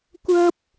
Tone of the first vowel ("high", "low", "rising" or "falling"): high